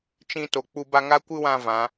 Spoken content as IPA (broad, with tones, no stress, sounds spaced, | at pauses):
t͡ʃ ĩ˧ t o˨ k͡p u˧ b a˧ ŋ a˦ kʷ ɨ˦ w ã˧ v ã˨˦